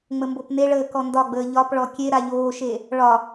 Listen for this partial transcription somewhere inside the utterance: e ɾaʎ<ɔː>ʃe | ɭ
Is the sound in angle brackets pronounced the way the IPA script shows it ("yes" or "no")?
no